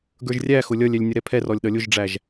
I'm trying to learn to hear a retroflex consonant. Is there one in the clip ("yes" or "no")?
yes